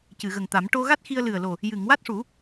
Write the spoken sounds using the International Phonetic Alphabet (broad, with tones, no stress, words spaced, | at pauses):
cɨ˨˩˨ɣə˨˩ŋt̪a˨˩˦m ʈo˧ɣa˦˥t̚ xi˧ə̯lɨ˨˩ə̯lo˨˩ | jɨ˨˩˨ŋwa˦˥t̚ʂu˨˩˦